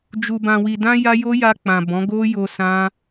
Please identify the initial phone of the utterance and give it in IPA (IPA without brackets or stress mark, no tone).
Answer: d͡ʒ